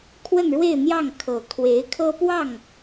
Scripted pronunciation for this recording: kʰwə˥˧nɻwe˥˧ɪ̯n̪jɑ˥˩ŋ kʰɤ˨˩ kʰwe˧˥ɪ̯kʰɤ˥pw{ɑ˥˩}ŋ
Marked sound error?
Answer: no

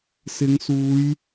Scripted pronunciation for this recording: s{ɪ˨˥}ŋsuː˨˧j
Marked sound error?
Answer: yes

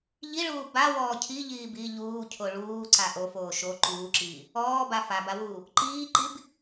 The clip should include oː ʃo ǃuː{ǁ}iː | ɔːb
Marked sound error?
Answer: no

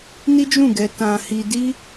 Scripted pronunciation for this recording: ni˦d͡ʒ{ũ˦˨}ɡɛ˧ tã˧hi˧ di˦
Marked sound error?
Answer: no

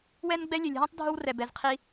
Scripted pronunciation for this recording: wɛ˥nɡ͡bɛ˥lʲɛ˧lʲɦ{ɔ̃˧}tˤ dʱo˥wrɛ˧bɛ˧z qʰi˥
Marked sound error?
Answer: yes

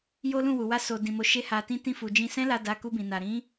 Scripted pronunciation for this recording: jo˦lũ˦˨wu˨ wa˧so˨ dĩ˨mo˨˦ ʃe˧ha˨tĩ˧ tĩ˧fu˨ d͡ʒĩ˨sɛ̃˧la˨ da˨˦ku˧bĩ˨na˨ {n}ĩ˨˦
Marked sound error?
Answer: yes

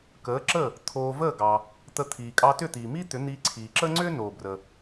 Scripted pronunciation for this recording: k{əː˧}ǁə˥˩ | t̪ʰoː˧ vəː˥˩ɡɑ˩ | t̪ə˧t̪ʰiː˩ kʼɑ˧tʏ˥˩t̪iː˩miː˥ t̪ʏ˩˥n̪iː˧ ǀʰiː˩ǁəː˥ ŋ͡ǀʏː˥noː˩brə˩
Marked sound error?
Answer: yes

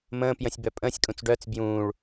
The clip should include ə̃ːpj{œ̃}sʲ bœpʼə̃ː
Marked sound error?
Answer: yes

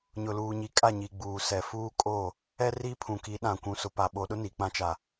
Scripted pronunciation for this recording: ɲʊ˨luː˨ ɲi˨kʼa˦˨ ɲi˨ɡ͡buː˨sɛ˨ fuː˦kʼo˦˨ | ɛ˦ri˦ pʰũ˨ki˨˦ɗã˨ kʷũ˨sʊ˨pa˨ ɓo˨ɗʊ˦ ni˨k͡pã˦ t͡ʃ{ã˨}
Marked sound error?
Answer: yes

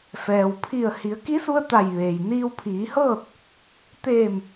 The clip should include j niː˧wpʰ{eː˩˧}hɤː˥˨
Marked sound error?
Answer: yes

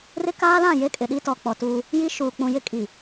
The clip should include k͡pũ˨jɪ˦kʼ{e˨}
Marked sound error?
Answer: yes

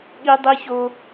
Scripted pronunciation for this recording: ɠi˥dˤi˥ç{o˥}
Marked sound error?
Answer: no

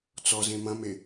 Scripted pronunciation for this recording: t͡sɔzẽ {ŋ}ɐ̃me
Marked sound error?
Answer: yes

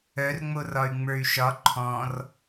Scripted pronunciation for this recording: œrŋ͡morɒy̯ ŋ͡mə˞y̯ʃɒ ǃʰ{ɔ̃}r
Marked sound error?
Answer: no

